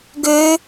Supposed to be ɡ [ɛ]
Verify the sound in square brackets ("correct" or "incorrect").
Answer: incorrect